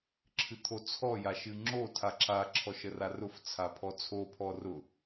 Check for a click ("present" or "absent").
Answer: present